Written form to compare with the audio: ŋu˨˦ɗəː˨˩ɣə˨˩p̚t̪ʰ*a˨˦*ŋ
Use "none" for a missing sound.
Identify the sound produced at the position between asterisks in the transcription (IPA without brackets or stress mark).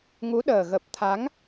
a˨˦